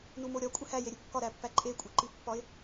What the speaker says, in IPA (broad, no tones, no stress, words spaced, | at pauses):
numoɾʲɒ kʷʼehæjeɾʲu kːɒɾæpːæ ǃʼekʷʼeǃipːɒɪ̯